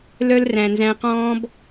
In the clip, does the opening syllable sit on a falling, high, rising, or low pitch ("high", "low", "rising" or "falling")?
high